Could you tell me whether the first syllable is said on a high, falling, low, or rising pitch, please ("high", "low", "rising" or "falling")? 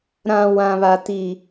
low